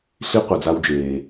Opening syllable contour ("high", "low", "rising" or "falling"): high